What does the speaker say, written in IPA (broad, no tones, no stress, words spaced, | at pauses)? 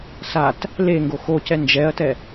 sat | le ŋɡoxocɛ nd͡ʒɛɐ̯tɛ